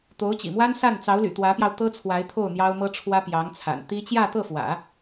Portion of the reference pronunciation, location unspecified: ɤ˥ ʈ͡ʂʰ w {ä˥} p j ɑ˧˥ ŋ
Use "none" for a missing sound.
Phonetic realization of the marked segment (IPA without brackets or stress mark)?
ä˥